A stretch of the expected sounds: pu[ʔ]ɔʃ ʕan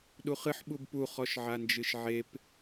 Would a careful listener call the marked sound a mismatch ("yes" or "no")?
yes